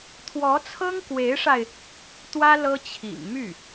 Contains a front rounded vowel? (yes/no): yes